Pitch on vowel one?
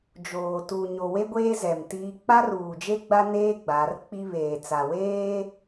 low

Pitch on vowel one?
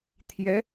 rising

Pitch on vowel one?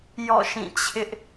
falling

